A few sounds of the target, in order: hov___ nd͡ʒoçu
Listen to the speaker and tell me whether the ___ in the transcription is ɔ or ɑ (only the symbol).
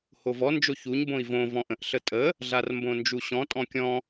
ɔ